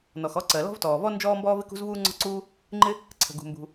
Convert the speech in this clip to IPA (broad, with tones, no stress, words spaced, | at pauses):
nɔ˩xɔ˥ ǀɜ˩lɔ̤˥vtɔː˩vɔ˥ nd͡ʒɔː˥mbɔː˥v ɪ˥kṳ˥zvuː˥ ŋ͡ǀɔ̤˥ǀuː˥ | ŋ͡ǃɪ˥ | ǀʰə̤˩ɡṳ˩mbṳ˩